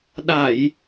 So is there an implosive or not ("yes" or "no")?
yes